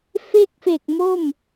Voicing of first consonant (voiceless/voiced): voiceless